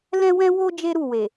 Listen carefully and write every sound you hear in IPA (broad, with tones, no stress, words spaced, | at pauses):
lɛ̃˦wɛ̃˦wo˦ d͡ʒe˦ɾu˦˨we˨